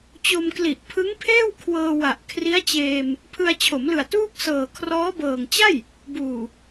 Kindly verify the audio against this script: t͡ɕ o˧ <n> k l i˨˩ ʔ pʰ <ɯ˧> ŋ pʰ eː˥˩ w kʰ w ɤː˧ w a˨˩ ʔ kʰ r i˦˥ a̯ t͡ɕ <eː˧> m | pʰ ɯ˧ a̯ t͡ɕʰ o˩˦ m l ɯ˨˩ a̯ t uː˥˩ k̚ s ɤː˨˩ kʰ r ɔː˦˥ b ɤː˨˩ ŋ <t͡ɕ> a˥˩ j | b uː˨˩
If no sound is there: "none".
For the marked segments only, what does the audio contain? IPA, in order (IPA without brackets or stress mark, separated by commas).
m, ɯ˦˥, eː˧, t͡ɕ